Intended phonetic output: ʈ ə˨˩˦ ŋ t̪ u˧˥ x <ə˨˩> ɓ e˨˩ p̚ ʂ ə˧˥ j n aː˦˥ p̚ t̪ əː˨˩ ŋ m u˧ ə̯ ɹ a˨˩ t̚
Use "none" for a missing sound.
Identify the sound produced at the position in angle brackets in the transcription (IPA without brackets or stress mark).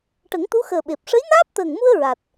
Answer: əː˨˩